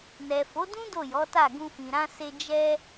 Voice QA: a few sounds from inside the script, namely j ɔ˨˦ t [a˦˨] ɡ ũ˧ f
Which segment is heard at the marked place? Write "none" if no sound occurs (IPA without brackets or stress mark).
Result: a˦˨